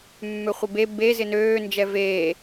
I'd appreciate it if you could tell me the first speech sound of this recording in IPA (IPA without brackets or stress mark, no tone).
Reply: mː